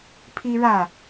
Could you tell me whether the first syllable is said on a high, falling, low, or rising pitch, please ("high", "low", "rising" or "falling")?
high